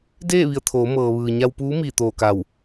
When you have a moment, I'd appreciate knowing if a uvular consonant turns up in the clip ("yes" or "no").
no